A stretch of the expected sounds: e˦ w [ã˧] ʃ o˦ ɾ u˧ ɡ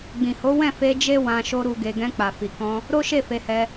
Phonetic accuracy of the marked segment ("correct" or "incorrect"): correct